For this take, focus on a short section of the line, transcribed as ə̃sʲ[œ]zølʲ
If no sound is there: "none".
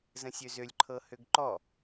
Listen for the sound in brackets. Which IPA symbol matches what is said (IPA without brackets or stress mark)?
ø